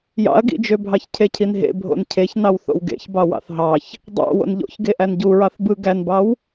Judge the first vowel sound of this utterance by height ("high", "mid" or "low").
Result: low